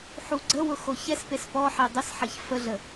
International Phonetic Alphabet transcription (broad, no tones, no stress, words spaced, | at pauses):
ħuɡ͡ǀəwʊ xoçɛspes pɔħe dˤɪsħɐç fəɮə